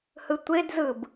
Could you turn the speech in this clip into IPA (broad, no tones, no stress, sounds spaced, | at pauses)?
h ɯ tʷ e d z ɯ b